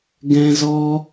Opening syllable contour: high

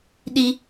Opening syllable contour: high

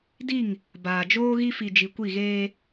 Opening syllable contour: falling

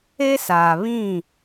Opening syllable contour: high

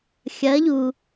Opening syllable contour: rising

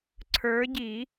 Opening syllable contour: rising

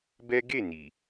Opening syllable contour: high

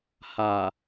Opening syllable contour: low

